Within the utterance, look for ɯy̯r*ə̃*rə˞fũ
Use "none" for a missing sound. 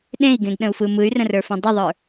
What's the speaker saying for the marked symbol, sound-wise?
ə̃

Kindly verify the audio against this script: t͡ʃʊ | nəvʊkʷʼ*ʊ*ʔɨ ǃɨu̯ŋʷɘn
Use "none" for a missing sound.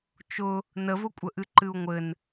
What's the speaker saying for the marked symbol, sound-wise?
ə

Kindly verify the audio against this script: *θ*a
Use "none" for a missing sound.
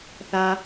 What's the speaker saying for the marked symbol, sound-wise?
θ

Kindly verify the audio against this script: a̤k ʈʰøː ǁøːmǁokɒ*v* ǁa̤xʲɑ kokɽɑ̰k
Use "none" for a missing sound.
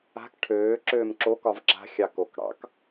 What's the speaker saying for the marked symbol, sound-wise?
v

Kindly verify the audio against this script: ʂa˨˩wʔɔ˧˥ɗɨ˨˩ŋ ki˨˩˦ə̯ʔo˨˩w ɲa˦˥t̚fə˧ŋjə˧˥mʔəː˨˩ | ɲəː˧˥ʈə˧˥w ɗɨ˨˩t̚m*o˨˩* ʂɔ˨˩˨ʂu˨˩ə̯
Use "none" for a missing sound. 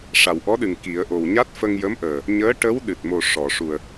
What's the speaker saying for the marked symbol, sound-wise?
o˨˩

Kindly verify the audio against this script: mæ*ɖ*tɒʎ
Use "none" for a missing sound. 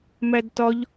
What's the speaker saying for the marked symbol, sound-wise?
d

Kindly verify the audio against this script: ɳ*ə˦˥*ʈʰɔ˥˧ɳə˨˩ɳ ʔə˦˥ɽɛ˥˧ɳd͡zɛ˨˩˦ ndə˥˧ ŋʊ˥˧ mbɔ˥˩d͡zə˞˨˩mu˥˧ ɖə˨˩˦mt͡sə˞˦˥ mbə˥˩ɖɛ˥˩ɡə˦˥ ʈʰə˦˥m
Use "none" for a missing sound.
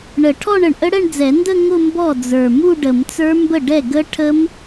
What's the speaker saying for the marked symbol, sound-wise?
ə˨˩˦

